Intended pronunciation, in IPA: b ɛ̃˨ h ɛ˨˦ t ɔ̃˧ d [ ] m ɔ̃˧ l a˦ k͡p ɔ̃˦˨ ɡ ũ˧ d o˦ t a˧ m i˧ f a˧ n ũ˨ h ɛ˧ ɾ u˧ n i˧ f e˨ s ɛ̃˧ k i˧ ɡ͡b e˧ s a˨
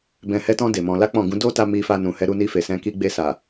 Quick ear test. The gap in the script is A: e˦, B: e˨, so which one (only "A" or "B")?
B